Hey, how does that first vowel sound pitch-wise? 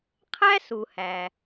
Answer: high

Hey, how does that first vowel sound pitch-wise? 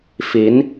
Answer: rising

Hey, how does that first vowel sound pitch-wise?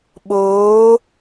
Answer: rising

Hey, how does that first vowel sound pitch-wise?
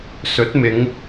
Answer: rising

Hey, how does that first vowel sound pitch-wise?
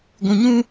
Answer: low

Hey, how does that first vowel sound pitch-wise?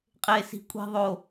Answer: low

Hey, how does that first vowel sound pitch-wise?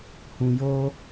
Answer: low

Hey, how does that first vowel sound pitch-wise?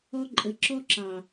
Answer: high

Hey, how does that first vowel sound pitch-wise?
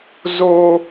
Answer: high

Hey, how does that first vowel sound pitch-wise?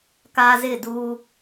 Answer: high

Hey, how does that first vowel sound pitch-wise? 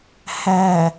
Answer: low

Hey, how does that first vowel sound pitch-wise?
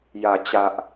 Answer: low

